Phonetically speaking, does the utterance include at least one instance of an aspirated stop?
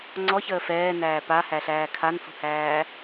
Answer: yes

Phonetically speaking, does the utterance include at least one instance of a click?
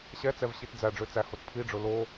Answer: no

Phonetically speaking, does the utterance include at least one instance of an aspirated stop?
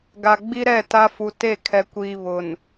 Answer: yes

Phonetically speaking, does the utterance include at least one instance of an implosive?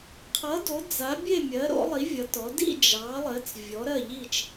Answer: no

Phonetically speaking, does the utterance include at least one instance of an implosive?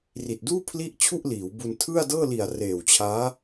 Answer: no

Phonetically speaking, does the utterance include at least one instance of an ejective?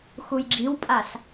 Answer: yes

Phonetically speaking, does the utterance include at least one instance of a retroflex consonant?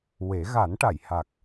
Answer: yes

